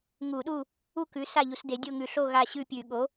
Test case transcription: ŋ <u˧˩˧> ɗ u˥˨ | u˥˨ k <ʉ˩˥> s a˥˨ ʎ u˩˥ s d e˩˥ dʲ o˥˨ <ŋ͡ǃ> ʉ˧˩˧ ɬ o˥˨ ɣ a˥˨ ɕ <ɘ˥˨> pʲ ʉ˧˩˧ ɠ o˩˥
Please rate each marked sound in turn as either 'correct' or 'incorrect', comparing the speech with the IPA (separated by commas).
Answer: correct, correct, incorrect, incorrect